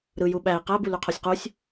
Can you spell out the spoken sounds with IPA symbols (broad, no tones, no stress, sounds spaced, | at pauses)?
ɾ ɯ j u ɓ æ i̯ q æ b u l y qʰ o sʲ q u sʲ